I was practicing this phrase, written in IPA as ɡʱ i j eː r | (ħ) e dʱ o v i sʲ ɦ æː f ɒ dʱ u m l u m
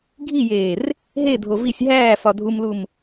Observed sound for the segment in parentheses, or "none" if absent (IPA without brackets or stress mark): ɦ